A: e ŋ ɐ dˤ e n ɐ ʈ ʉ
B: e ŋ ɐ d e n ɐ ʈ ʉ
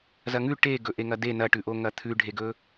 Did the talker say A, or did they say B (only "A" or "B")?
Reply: B